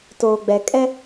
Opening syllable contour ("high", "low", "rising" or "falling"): low